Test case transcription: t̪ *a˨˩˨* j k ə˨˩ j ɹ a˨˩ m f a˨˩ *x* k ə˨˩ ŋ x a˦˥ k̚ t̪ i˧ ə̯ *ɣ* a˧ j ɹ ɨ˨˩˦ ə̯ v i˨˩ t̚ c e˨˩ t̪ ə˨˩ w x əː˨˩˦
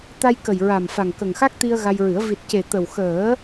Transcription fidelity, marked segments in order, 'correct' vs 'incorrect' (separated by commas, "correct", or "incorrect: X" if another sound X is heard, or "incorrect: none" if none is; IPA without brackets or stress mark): incorrect: a˧, incorrect: ŋ, correct